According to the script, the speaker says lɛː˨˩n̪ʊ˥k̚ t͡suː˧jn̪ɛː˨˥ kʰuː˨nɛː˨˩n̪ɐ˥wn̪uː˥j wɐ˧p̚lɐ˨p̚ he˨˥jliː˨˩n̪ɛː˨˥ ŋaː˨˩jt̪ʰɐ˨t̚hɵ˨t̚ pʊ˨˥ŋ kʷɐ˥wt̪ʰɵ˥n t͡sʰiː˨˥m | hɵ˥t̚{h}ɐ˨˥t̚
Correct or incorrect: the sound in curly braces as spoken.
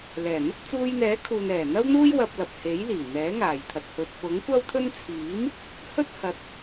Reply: correct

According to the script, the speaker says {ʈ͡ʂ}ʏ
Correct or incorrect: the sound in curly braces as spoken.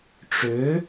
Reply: correct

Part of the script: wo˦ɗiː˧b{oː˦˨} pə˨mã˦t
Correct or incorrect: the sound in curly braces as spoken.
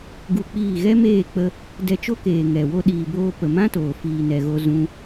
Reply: incorrect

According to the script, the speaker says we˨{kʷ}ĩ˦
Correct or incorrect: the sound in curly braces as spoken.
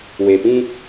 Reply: incorrect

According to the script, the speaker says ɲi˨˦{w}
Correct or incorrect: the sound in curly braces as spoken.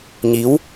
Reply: correct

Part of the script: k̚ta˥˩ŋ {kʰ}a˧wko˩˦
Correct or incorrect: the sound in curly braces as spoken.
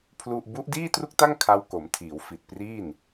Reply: correct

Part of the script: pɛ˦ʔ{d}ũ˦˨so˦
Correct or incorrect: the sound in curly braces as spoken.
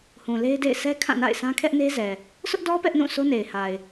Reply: incorrect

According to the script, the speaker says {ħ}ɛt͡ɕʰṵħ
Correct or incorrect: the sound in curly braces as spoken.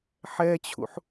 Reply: correct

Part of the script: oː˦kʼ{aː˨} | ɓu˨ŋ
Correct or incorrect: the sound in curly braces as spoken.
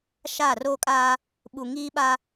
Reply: incorrect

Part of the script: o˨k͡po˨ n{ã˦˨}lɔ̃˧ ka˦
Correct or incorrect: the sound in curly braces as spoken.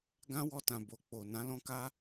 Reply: incorrect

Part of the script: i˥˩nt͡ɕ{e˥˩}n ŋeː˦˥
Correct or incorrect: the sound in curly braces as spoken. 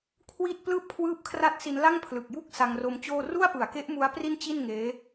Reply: incorrect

